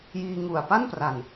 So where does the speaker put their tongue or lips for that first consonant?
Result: palate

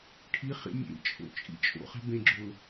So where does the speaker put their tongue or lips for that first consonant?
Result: retroflex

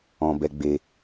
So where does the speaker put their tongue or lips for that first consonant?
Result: lips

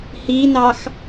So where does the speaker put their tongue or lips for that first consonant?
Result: throat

